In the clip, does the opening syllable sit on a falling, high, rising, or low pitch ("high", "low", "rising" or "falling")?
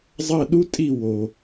falling